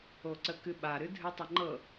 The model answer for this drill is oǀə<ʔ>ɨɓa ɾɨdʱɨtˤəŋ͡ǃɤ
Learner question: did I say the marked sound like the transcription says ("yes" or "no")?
no